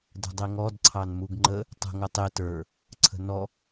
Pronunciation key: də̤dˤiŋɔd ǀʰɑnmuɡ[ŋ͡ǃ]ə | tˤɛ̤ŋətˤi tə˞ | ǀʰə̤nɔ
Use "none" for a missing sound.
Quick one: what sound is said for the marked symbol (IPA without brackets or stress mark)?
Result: ŋ͡ǃ